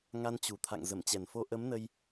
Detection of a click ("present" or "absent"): absent